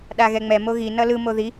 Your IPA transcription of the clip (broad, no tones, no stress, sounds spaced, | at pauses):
ɗ a ɣ ɛ ŋ͡m ɛ m o ɣ i n ʌ l ɯ m o ð i